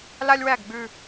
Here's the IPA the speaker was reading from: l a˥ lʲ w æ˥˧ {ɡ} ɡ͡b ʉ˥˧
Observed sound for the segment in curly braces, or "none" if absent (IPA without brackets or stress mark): ɡ